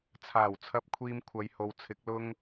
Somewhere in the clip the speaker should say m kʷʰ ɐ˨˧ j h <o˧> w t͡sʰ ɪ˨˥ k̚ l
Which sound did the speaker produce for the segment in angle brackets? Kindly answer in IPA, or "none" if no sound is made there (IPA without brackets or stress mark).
o˨